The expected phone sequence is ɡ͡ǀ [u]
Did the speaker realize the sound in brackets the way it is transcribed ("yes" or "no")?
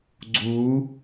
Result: yes